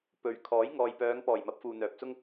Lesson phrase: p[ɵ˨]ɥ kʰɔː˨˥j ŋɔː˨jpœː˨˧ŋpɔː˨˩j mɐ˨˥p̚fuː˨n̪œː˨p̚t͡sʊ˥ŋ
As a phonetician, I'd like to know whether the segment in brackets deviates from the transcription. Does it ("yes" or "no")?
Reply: yes